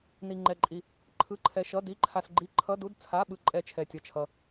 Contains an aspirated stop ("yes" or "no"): yes